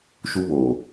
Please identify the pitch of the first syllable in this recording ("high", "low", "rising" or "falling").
high